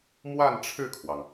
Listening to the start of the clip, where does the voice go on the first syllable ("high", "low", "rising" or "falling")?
falling